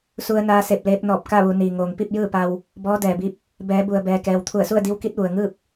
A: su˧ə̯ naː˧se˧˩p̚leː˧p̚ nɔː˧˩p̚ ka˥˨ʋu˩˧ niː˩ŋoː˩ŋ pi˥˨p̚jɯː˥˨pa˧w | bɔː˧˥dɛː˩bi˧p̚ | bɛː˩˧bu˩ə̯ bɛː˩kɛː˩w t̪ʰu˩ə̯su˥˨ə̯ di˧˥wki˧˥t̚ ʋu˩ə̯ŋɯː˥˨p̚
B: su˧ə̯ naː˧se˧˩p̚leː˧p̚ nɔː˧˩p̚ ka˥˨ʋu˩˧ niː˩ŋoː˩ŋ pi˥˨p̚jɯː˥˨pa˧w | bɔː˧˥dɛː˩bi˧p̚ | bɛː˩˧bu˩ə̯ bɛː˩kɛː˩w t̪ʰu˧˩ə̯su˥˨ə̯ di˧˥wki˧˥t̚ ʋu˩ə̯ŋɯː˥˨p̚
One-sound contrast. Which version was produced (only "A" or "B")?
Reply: B